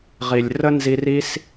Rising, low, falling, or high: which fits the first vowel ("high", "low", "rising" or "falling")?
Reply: low